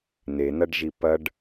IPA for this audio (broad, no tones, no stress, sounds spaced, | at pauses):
n e n ɐ ɖ ʒ i p ɐ ɖ